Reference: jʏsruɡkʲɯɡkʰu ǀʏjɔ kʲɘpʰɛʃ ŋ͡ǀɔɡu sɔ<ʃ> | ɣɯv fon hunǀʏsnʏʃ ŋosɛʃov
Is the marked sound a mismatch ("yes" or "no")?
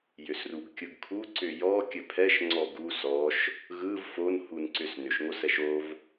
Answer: no